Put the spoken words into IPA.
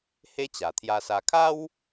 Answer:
h e˦ t͡ɕ a˨˩ t̪ʰ j a˧ s a˧ kʰ a˦ w

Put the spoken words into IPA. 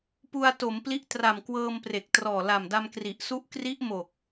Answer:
p u˧ a̯ t o˩˦ m p l i˦˥ ʔ t r a˨˩ m k w ɤː˧ m p r e˨˩ k̚ t r ɔː˨˩ l a˨˩ m d a˧ m k r i˨˩ ʔ s u˦˥ ʔ k r i˦˥ ʔ m o˨˩ k̚

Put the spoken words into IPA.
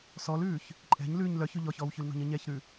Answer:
s ɔ l ʉː ç | ǃʼ ɛ̤ ɲ l ʉː ɲ l œ ç ʉ ʎ ɔ ç ɔː w ç ʉ l n ɔ̤ ɲ ə ɲ ɛ ç ɾ ʉ

